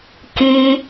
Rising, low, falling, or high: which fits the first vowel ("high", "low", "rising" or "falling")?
high